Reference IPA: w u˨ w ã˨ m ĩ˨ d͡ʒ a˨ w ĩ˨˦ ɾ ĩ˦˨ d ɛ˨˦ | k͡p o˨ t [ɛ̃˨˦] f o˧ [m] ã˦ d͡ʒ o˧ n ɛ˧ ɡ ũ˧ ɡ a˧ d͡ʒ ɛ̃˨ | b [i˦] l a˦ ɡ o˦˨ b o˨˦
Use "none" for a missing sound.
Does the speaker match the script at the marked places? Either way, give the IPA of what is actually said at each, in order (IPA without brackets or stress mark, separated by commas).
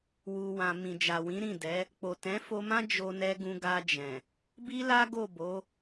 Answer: ɛ̃˨˦, m, i˦